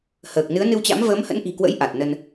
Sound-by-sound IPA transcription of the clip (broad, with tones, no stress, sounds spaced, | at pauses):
h əː˨˩ k̚ n ɨ˨˦ ə̯ n ɨ˧ w t͡ɕ a̰˧˥ m v əː˨˦ m h ə̰˧˥ n ʔ i̤˨˩ k w ə̰˧˥ j ʔ a˨˩ t̚ n ə˧ n